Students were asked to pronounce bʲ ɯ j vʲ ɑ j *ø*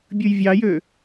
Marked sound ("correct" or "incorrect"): correct